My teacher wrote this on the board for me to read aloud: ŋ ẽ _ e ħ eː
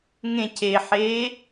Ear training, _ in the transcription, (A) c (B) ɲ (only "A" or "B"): A